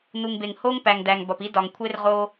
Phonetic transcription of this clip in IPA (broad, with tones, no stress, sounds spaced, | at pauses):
n u˨ ŋ b e˨ ŋ h o˦ ŋ p æ˨ ŋ d æ˨ ŋ b ɒ˨ p i˦ d ɒ˨ ŋ kʷʰ e˦ r ʁ o˦